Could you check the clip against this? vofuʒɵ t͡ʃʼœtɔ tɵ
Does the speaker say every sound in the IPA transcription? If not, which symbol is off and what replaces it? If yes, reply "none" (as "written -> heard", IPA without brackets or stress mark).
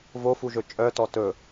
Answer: none